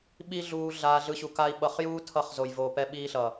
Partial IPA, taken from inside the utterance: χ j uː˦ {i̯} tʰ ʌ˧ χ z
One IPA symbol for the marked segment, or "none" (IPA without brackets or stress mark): none